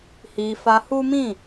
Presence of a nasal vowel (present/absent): present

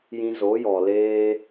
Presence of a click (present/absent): absent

